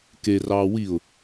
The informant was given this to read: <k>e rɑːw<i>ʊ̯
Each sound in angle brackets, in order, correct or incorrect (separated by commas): correct, correct